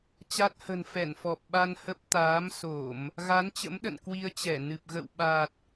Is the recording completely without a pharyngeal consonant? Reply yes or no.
yes